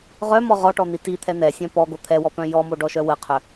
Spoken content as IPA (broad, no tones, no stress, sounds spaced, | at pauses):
ʁ œ m ɔ ʁ ɔ ʈ ɔ n̪ i t i t̪ʰ ɛ n̪ ɛ sʲ œ̃ p ɔ ɡ o t̪ʰ ɛ w ɔ p œ̃ j ɔ m o ɖ ɔ ʃ œ w ə qʰ œ